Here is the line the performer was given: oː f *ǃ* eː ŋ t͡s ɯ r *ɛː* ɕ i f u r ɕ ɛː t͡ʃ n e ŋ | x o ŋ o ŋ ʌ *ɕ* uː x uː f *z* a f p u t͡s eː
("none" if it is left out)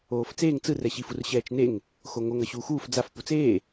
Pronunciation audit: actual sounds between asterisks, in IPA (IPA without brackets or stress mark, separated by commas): t͡s, ɛ, ɕ, d͡z